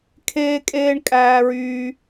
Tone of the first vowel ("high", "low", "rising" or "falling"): high